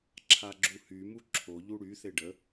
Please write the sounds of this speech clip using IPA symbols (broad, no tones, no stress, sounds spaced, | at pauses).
ǁʰ a ɡ͡ǁ u h y m u ǁʰ o ʎ u ɽ y θ e ɖ ə